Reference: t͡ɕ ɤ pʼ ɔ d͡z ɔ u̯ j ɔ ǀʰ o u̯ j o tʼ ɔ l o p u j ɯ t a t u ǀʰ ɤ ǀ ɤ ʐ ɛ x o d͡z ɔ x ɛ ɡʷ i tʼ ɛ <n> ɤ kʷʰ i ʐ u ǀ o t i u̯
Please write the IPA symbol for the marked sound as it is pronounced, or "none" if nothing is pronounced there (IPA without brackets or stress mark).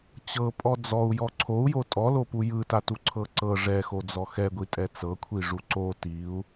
t͡s